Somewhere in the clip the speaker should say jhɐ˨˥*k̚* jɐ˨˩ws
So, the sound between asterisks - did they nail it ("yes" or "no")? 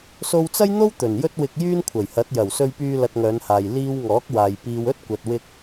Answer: no